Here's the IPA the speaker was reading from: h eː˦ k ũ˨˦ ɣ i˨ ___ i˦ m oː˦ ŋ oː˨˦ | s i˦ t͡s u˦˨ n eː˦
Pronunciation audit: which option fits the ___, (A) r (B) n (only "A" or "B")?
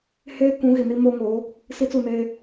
B